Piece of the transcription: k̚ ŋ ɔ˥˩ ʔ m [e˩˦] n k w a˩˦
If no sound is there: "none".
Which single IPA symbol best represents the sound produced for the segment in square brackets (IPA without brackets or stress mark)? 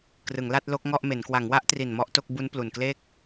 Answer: e˩˦